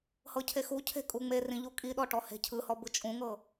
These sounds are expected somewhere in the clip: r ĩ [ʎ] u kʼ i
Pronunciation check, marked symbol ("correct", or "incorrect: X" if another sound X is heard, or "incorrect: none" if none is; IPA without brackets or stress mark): correct